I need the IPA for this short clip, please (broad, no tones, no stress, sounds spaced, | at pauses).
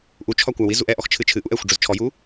ʔ u t͡ʃʰ ɒ kʷ a w i z u ʔ ɛ ʔ ɔ x t͡ʃʰ ɨ t͡ʃʰ ɨ ʔ u ʔ ɛ xʷ ɖ͡ʐ ʊ z t͡ʃʰ ɔ j u